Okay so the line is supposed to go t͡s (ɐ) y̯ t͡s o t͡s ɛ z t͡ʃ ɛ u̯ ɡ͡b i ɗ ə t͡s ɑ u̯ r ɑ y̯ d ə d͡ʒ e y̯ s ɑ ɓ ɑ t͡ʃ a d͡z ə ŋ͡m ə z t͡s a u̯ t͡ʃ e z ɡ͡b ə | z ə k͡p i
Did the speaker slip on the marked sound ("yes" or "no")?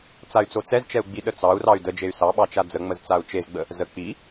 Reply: yes